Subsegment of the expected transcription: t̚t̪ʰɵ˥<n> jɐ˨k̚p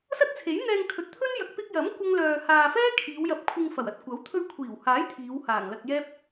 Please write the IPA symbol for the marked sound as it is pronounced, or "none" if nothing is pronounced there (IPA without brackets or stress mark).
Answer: n